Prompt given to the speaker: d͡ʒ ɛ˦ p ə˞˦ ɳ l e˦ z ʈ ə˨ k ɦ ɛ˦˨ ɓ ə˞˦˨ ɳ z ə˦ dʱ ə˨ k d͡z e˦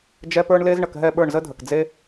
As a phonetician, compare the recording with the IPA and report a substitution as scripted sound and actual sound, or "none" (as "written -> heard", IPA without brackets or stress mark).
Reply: ʈ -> ɳ